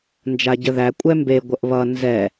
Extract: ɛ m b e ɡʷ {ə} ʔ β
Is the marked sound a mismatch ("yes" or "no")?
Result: no